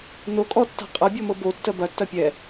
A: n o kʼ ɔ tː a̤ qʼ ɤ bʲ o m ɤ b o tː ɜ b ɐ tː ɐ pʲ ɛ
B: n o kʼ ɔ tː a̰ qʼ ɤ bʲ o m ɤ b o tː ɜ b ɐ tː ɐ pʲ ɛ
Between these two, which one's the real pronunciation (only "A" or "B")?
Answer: A